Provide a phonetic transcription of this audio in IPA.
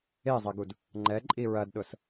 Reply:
e zˤ ɐ ɡ u d | ŋ͡ǃ ɛ ǃʼ i ɹ ɐ d ɗ ʊ s

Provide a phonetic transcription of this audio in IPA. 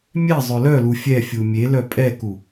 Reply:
mʲ ɛ zˤ ʏ l œ l u fʲ ɛ fʲ u mʲ e l œ pʼ ɛ k u

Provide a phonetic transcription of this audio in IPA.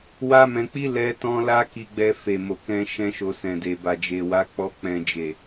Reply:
w a˦ m ɛ̃˧ k͡p i˦ l ɛ˦ t ɔ̃˦ l a˦ k i˧ ɡ͡b ɛ˧ f e˨ m o˨ k ɛ̃˧ ʃ ɛ̃˦ ʃ o˧ s ɛ̃˨ d e˨ b a˨ d͡ʒ e˨ w a˨˦ k͡p ɔ˧ k͡p ɛ̃˨ d͡ʒ e˨

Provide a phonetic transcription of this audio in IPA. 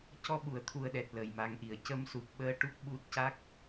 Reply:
c ɔ˧ ɓ u˨˩˨ ə̯ t̪ʰ u˨˩ ə̯ ɗ ɛ˨˩ t̚ l ə˨˩ j m a˧ ŋ ʔ i˨˩ ə̯ c ə˧ m s u˨˩ p̚ ɓ əː˧ ʈ u˦˥ k̚ ɓ u˦˥ t̚ c a˦˥ k̚

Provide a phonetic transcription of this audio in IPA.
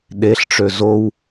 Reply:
ɗ e ɬ ʈ͡ʂ ø z o w

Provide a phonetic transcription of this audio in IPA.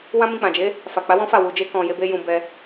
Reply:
w ã˦ m ĩ˧ k͡p ã˨ d͡ʒ e˨˦ | f a˨ k͡p a˨˦ w ɔ̃˦ f a˦˨ w u˨ d͡ʒ e˧ k ɔ̃˨ j e˨˦ b e˦ j ũ˧ b ɛ˧

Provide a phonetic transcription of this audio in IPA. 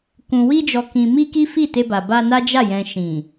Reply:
k ũ˨ w i˧ d͡ʒ ɔ˨ k ĩ˨ m i˧ k i˦ f i˦˨ t e˧ b a˨ b a˧ n a˦ d͡ʒ a˦˨ j ɛ̃˨ ʃ ĩ˨

